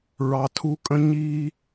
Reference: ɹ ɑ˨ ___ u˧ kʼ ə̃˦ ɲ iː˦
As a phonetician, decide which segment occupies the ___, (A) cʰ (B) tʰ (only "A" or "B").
B